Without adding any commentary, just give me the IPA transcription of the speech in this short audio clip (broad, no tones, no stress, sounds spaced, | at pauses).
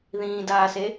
ð ĩː d aː s e